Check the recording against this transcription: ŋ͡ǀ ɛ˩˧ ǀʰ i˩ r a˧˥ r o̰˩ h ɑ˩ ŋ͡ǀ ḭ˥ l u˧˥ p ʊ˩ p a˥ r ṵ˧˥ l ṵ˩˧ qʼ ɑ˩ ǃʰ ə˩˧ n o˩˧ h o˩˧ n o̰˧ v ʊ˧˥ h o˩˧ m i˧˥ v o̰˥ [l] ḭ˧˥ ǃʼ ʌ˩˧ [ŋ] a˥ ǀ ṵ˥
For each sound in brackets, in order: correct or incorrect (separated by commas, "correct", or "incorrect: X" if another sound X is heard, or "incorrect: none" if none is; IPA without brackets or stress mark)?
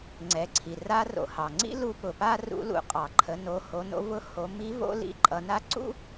correct, incorrect: n